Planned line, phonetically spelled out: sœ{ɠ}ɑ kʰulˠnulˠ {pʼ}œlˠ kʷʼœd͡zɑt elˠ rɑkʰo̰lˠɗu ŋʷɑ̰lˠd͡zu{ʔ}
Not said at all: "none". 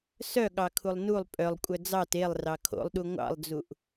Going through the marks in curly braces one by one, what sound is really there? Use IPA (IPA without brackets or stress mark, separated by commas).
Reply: ɠ, pʼ, ʔ